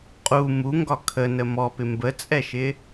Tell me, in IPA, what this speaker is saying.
qʼ u m u ŋ ɡ ɒ kʰ ə n ə m ɔ p ɪ m b ə t͡sʼ ɛ ʃ ɪ

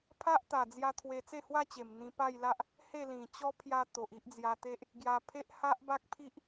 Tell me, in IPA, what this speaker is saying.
pʰ a˦ ʔ t̪ a˨˩ d͡z j a˧ t̪ʰ w e˧ t͡s e˥˧ h w a˦ t͡ɕ e˨˩ m n̪ ĩ˧ p a˥˧ j l a˦ ʔ | h e˥˧ l ĩ˨˩ t͡ɕ ɔ˦ pʰ j a˧ t̪ o˨ ʔ i˦ ʔ d͡z j a˧ t̪ e˦ ʔ | ɡ j a˧ pʰ e˦ ʔ h a˦ ʔ b a˦ k̚ pʰ i˦ ʔ

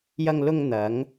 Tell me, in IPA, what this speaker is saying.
j ɐ˧ ŋ l ʊ˧ ŋ n̪ ɐ˨˧ ŋ

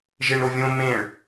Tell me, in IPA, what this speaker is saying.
ʒ e ɳ ɾ o vʲ õ m ẽ ɭ

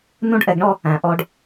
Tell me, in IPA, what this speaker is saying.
n ũ˥ ɖ ʔ ɛ˧ ɡ ɳ ɔ˥ | æ̃˩ ʔ ɔ˧ ɖ

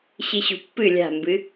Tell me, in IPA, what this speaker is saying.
ɕ ɨ ɕ ṳ pː ɨ lʲ a̤ m b ɨ

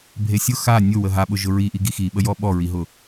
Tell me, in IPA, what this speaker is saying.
bʱ e sʲ ʊ x a nʲ ʊ w ə ɦ a ɓ ʊ ʒ ʊ ɹ i ʔ i ɡ i x i ɓ ə j ɔ ɓ ɔ ɹ i ɦ ʊ

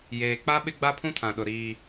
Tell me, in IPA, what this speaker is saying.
j eː˨ k͡p a˦ ɓ ɪ˦ ɡ͡b a˦ pʰ ũ˦ tʰ ã˨ ɗ ʊ˨ ɾ iː˦

